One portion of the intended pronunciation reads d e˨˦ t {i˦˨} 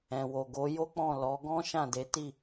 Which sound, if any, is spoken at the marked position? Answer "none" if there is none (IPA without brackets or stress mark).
i˦˨